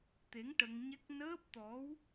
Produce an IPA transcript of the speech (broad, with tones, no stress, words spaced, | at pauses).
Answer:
t̪e˧˥ŋʈə˧ŋɲɛ˦˥k̚ nəː˦˥p̚t̪ɔ˧˥w